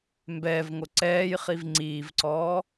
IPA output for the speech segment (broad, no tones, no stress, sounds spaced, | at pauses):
m b ɛː v ŋ o ǀ ɛː j χ i v ŋ͡ǀ iː v ǀ ɔː